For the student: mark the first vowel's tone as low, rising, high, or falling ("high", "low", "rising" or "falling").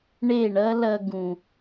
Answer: falling